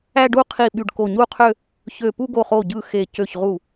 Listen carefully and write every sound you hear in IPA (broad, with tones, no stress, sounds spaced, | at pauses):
æ˥˧ ɖ u˥˧ qʰ i˧˩ ɓ y˧˩ ɖ k o˧˩ ɲ u˥˧ qʰ ø˥˧ | ç ø˧˩ p u˥˧ ɡ o˧˩ χ o˧˩ ɟ ɯ˧˩ x e˧˩ c ø˧˩ ç ʁ u˧˩